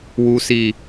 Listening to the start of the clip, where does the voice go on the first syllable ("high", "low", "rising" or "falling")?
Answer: low